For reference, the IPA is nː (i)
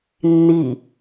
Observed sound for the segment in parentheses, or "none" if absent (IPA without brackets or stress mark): i